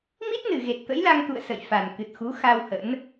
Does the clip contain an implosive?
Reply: no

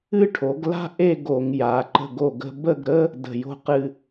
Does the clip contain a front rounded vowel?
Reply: no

